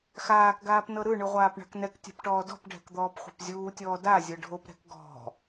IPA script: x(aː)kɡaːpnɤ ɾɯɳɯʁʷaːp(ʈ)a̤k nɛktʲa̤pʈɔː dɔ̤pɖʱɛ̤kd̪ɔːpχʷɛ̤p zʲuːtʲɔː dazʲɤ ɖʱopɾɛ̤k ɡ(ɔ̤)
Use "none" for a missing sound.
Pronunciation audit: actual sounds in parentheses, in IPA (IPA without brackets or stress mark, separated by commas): aː, ɳ, ɔ̤